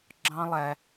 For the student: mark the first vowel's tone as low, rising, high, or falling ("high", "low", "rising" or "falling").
high